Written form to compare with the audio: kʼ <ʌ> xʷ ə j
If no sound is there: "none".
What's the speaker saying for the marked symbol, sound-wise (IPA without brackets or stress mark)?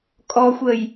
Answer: ɔ